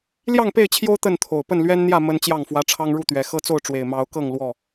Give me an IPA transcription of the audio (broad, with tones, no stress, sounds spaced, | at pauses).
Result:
l j ɑ˥˨ ŋ p e˥˨ ɪ̯ t͡ɕʰ j o˦ ʊ̯ t̪ ə˥˨ n t̪ʰ o˨˩ ʊ̯ p ə˥˨ n l ɥ ɛ˦ n n̪ j ä˥˨ m ə˦ n t͡ɕ j ɑ˥˨ ŋ f w ä˦ ʈ͡ʂʰ ɑ˦ ŋ ɻ u˥˨ t̪ ɥ ɛ˨˦ x ɤ˦ t͡s o˥˨ ʊ̯ ʈ͡ʂ w e˨˩ ɪ̯ m ɑ˨˦ ʊ̯ k ɤ˥˨ ŋ l w ɔ˥˨